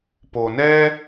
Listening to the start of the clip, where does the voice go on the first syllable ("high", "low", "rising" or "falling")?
low